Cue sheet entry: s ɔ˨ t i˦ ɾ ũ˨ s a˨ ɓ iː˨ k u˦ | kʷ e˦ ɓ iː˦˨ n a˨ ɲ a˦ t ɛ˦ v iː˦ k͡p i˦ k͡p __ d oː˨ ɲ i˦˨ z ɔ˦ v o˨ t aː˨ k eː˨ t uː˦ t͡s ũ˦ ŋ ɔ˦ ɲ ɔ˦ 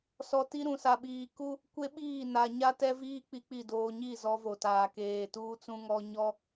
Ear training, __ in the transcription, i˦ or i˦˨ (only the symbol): i˦˨